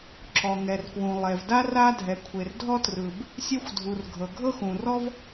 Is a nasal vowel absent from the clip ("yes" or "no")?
no